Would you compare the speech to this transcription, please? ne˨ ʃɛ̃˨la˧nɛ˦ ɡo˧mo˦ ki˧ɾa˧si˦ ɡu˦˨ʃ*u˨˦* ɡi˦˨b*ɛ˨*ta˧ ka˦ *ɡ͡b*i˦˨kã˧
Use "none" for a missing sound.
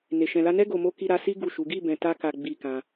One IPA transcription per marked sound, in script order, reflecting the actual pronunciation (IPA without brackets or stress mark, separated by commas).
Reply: u˨˦, ɛ̃˨, ɡ͡b